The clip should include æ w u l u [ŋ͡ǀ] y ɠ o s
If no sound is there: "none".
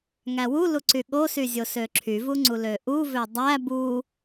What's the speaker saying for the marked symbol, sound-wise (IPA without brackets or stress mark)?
ǀ